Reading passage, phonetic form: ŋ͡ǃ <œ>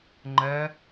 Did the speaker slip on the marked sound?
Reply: yes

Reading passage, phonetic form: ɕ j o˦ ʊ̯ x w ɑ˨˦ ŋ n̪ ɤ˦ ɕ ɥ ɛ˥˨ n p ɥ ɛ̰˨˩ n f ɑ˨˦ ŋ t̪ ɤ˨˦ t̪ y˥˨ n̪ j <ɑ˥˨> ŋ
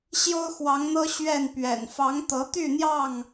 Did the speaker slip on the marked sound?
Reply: no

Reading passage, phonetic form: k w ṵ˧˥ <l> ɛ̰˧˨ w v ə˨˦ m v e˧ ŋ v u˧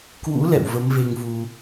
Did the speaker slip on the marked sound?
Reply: no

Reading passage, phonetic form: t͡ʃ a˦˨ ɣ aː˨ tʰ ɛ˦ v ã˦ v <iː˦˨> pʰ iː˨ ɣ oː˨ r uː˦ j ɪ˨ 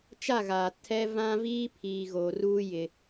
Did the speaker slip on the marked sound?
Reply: yes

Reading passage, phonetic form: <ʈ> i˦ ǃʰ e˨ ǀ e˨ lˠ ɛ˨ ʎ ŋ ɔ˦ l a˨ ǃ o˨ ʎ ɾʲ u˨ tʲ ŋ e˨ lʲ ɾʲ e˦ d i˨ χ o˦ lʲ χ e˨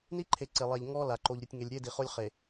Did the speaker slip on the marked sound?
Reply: yes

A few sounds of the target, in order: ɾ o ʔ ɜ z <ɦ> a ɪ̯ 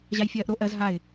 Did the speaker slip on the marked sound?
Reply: no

